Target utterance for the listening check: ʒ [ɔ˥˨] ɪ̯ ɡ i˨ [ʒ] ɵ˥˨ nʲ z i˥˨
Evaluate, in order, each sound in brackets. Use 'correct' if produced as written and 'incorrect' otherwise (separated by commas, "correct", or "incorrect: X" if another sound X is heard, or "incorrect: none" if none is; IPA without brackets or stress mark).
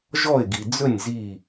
correct, incorrect: d͡z